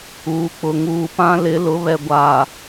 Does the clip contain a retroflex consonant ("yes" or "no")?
no